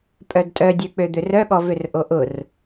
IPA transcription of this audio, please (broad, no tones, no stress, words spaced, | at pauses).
pʼœdtʼœdʲø k͡pød̪ørœ ɠɔvørʔoʔʊr